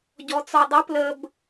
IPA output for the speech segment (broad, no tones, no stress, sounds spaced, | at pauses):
ɟ ɔ t͡s ɔ dˤ ə p l ə b